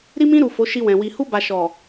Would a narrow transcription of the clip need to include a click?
no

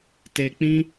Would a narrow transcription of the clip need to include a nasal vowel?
yes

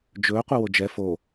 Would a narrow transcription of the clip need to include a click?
no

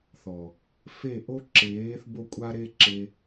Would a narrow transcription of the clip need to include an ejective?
yes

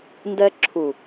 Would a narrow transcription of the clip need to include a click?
yes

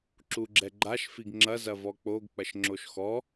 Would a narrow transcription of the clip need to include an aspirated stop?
no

